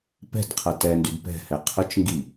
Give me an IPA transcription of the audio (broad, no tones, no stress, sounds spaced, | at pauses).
p ɛ̤ d qʰ ɐ t ɛ n d y d p ɛ̤ h ɛ qʰ ʊ t͡ʃ ŋ ɡ i